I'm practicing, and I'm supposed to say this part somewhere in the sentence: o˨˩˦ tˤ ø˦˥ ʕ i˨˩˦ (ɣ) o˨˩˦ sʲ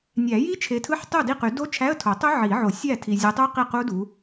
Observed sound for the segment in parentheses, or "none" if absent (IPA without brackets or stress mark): ʕ